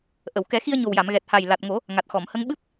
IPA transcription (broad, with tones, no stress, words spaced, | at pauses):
ʔə˨˩˨w kɛ˨˩˦xi˧ə̯ɲo˨˩wja˨˩˨m ɣɛ˨˩t̚ha˨˩j la˨˩t̚ŋo˨˩˦ | ŋa˨˩t̚xɔ˨˩˨mhə˧˥ŋ ɓɨ˦˥p̚